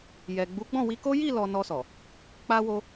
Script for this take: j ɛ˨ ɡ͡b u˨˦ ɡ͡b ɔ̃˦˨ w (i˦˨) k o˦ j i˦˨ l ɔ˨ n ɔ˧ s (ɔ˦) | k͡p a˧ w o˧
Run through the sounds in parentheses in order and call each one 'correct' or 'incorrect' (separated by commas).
incorrect, incorrect